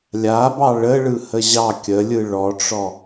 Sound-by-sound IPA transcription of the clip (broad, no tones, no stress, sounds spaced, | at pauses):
lʲ a b ɑ ɭ ə ɭ ɯ h ə ʑ ɑ kʲ ə lʲ ɯ ɭ ɔ ʈ͡ʂ ɔ